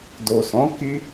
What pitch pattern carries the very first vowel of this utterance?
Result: low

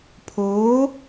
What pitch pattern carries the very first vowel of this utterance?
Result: rising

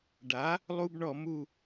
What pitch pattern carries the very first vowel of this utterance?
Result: rising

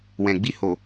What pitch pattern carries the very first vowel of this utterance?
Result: low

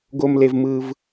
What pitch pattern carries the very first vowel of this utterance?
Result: low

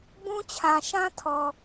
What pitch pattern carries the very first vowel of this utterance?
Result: high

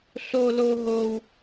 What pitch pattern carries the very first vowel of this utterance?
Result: high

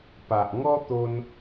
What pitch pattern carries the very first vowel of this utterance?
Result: low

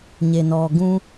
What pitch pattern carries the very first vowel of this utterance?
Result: low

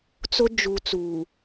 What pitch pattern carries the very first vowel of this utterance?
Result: high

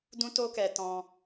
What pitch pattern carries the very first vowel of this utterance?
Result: high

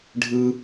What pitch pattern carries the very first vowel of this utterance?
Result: high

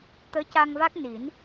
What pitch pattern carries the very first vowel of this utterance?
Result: rising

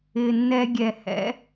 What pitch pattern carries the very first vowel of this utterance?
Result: low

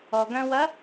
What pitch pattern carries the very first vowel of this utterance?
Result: low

